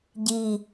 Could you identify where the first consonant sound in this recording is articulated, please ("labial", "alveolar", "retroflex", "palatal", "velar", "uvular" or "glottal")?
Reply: palatal